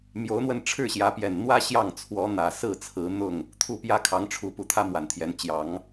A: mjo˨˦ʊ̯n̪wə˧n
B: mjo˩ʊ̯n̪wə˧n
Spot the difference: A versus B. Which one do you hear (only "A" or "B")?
A